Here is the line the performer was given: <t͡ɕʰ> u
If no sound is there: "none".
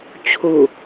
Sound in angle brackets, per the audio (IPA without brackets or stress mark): t͡ɕʰ